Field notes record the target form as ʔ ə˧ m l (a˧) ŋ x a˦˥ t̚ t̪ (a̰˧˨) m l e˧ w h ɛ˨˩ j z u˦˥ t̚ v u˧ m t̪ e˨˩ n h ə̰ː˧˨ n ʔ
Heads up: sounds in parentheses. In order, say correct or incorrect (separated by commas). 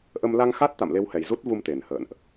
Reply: correct, correct